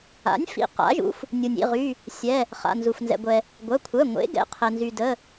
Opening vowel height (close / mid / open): open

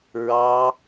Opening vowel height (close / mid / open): open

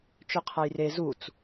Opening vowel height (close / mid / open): mid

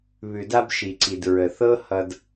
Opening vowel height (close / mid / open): close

